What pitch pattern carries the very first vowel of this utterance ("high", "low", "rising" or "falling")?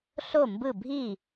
falling